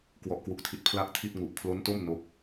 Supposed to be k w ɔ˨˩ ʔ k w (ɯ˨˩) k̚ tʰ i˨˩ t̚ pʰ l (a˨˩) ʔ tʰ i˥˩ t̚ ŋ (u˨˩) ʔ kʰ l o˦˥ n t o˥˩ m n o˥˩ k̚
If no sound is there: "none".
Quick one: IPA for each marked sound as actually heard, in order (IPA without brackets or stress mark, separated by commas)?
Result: u˨˩, a˥˩, u˨˩